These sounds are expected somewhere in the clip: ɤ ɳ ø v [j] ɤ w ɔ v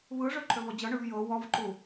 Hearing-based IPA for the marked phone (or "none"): j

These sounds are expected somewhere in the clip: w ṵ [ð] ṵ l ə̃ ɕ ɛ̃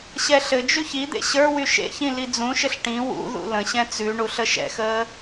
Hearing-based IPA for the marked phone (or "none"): ð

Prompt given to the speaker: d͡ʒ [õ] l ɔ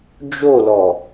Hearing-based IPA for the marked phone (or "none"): o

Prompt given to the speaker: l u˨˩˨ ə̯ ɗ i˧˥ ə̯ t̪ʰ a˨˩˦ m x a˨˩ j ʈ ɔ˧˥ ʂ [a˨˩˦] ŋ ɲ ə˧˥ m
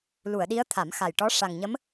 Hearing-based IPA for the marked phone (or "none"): a˨˩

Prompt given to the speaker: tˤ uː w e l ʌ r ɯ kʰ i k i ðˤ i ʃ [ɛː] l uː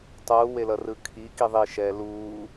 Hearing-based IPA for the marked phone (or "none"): ɛː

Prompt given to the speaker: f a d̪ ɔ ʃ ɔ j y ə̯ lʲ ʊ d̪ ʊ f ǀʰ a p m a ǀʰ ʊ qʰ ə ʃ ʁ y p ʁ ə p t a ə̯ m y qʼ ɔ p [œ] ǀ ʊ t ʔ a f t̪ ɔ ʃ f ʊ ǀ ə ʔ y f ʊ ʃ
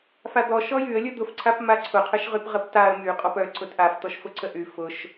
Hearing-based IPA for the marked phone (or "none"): œ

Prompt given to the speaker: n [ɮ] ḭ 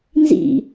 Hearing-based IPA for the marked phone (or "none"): z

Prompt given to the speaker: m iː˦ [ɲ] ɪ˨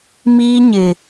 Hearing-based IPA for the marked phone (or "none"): ɲ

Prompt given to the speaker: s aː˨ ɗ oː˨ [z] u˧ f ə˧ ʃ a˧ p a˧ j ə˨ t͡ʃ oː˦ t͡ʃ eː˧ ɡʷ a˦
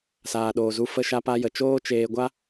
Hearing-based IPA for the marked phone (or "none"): z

